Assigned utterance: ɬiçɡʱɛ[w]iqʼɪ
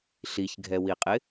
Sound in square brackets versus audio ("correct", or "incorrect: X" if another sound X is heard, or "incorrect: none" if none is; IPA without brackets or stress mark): correct